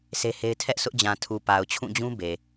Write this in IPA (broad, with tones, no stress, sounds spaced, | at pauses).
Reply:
sʰ e˦ h e˦ ɪ̯ tʰ ɛ˦ ʔ sʰ ʊ˦ ʔ d͡ʑ ã˨ tʰ u˨ p a˨ ʊ̯ t͡ɕʰ ũ˦˨ d͡ʑ ũ˦ b e˨